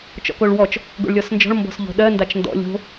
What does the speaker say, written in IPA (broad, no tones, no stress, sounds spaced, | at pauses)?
t͡ʃ ɔ̰ k o ɭ w ɔ t͡ʃ | ɡ o̰ ɭ lʲ ɔ s n d͡ʒ ɔ̤ ɭ m b ɔ̤ s ʎ o̤ ɗ ɜ n d a t͡ʃ n d ɔ̰ lʲ o̤